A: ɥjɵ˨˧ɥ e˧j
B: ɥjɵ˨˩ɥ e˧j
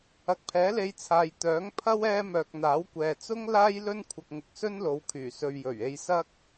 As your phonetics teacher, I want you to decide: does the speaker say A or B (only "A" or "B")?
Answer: B